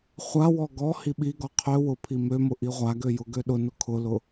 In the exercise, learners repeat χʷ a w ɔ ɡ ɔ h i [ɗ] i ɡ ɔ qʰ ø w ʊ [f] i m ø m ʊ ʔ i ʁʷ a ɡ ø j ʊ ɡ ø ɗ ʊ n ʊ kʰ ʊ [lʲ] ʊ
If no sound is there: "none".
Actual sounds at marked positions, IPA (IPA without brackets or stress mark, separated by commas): ɓ, pʰ, l